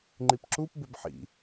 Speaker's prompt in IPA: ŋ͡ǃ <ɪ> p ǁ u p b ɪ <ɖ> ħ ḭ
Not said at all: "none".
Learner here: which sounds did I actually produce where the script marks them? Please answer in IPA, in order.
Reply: i, b

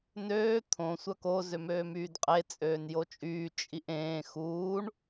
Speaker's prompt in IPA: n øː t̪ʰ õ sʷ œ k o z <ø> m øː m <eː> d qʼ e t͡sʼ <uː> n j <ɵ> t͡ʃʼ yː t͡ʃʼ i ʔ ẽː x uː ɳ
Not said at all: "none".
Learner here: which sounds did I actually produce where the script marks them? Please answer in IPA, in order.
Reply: ø, yː, øː, o

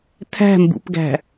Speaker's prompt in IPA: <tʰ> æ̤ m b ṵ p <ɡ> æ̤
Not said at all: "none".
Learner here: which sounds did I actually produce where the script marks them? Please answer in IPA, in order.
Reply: tʰ, ɡ

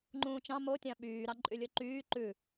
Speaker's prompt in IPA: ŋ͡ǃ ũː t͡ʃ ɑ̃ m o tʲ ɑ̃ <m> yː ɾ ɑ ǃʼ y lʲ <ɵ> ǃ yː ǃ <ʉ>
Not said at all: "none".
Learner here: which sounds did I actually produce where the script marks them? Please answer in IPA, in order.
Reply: ɓ, ɵ, ʉ

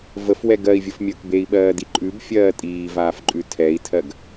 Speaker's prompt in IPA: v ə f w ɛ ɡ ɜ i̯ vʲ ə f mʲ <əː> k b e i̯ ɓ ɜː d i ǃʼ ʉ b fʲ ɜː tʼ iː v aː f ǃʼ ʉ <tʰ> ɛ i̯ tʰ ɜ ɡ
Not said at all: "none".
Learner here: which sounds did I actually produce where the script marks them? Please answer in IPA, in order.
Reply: əː, tʰ

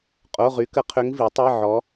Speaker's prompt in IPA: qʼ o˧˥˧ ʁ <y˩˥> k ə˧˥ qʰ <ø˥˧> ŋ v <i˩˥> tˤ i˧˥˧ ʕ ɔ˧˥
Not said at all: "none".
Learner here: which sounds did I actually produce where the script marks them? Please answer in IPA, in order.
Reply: y˧˥, ø˧˥, i˩˥

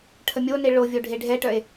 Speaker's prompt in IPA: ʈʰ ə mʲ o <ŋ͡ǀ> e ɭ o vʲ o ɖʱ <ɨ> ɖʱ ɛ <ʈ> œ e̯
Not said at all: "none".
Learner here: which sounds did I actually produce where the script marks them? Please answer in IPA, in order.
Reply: n, e, ʈ

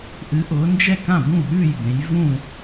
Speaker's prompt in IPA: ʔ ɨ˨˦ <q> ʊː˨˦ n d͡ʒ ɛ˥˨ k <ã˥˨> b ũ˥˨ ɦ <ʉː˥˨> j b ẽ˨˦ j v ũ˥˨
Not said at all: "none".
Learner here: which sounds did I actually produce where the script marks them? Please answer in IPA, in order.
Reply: ʔ, ã˥˨, ʉː˥˨

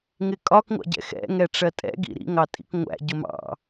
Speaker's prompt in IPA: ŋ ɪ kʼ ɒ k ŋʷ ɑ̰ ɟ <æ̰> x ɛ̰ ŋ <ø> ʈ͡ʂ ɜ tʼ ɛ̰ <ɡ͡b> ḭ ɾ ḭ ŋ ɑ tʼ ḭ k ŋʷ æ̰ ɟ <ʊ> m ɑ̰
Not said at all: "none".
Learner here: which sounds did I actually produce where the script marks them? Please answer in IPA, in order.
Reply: ɛ̰, ɛ, ɡ, ʊ

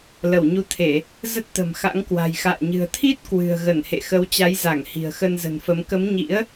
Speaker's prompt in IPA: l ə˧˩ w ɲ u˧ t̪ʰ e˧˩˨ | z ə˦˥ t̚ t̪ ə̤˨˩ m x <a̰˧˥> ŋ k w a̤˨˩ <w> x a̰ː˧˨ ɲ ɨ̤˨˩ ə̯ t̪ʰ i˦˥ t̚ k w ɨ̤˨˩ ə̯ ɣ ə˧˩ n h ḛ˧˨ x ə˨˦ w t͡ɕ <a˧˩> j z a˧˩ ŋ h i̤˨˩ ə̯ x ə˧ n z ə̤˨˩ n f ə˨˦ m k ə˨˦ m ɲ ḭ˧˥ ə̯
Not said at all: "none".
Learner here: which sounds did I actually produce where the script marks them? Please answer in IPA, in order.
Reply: a̰˧˥, j, a˨˦

